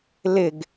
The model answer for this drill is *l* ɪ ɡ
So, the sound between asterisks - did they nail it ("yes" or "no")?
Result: yes